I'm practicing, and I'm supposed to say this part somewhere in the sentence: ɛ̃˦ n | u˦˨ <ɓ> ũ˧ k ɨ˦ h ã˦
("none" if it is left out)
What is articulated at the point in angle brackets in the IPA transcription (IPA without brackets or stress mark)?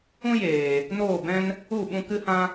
ɓ